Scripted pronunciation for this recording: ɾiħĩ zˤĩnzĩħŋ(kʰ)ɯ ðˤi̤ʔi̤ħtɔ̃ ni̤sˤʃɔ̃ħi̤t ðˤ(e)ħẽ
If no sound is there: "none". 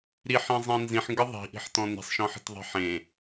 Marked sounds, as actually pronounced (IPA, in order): ɡ, e̤

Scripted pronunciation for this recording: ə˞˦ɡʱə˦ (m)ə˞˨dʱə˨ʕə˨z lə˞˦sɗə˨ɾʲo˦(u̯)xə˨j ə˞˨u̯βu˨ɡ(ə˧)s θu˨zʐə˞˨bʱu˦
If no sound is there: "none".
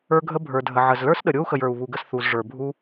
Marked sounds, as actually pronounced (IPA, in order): bʱ, u̯, ə˧

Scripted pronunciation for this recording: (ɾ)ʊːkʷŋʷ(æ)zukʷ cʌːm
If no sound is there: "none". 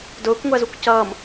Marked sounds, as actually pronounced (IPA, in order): d, æ

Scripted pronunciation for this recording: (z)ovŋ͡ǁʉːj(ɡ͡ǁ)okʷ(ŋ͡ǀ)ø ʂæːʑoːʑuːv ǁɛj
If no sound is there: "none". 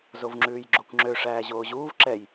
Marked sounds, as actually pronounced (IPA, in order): z, ɡ͡ǁ, ŋ͡ǁ

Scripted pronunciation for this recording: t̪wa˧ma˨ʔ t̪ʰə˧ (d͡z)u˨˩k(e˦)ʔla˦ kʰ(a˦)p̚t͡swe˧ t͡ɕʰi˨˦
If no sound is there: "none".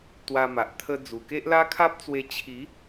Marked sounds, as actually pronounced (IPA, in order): d͡z, e˦, a˦

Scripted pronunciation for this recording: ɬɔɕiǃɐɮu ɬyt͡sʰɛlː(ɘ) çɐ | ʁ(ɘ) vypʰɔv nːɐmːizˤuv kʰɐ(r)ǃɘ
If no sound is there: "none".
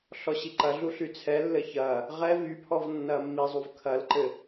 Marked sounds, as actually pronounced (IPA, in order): ɘ, ɛ, l

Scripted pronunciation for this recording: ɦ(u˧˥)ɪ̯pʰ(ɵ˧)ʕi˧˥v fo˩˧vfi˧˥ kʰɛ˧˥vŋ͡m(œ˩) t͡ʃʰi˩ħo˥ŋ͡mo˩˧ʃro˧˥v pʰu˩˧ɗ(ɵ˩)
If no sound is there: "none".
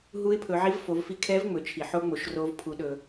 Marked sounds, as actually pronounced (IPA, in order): u˧˥, ɵ˩˧, ɵ˩, ɵ˩

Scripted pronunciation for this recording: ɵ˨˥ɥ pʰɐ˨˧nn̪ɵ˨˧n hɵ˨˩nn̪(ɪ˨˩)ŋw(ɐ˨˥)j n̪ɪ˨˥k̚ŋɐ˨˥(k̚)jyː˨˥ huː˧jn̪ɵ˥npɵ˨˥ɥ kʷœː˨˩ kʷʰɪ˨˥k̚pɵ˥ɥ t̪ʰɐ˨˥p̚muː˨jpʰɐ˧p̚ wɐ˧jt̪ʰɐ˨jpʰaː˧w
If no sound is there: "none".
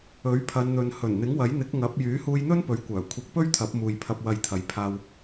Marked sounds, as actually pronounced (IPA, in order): ɪ˨˥, ɐ˨˥, p̚

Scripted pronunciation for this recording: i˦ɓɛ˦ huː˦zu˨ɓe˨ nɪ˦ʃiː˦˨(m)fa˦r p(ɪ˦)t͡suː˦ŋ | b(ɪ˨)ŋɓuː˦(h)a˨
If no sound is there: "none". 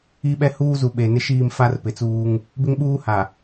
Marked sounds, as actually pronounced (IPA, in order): m, ɪ˨, ɪ˦, h

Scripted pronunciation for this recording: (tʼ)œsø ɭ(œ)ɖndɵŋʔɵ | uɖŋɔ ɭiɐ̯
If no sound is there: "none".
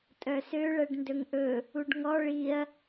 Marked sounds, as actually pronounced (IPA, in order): tʼ, ɛ

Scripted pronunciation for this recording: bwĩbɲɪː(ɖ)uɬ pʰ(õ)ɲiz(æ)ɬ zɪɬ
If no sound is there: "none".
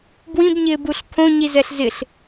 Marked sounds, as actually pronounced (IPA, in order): b, õ, ɛ

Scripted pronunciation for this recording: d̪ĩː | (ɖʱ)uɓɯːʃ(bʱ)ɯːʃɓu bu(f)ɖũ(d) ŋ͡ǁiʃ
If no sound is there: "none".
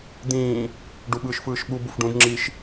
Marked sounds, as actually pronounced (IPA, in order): ɖ, f, f, d

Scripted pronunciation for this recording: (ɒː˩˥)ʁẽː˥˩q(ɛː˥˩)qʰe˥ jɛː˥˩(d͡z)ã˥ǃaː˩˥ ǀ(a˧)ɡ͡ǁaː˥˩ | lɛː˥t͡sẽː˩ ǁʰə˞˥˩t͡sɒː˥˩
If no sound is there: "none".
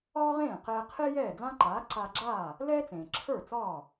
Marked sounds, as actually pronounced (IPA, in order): ɒː˥, ɛː˧, d͡z, a˧

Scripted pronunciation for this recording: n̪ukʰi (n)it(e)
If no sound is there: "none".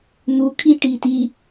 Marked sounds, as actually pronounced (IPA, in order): ʈ, i

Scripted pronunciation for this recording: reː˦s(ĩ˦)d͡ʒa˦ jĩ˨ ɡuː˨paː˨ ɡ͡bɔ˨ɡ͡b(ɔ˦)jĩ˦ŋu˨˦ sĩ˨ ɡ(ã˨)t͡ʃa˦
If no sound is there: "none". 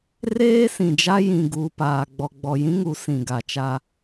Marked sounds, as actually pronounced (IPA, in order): ĩ˨, ɔ˨, a˨

